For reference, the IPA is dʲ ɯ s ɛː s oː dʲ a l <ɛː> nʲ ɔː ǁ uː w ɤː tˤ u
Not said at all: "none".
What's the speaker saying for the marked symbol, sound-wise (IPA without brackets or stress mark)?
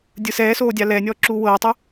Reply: ɛː